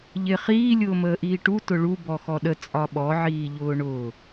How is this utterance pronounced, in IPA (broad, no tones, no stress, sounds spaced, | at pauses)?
ʎ ɪ χ iː lʲ ʊː m əː ʔ iː ʈ u t ʊ ɭ u b ɔ x ɔ ɗ ə t͡sʼ ɒ ɓ ɔ ʕ iː ʎ ʊː ɳ ʊː